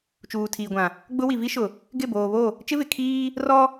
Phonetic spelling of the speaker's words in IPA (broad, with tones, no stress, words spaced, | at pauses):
t͡ʃuː˨tʰiː˨ɡʷã˨ | ɡ͡bʊ˦ wi˨vi˦ʃʊ˨ | ɡɪ˦˨boː˨βo˦˨ | t͡ʃɪ˦vɪ˨kʰiː˦ | rɔ˦